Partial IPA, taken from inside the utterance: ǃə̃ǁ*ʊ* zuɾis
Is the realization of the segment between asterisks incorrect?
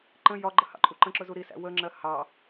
no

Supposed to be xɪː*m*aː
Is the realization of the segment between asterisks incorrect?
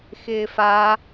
yes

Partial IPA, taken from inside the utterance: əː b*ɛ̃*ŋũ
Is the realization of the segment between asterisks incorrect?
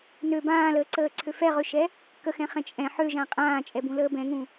no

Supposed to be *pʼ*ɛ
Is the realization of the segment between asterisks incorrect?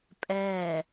no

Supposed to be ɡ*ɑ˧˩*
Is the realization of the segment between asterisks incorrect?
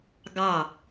no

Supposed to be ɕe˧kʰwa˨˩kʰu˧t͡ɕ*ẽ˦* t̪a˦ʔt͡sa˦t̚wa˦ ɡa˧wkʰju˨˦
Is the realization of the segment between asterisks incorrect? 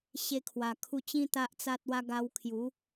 yes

